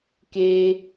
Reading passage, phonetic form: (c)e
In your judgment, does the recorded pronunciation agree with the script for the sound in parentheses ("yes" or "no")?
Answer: no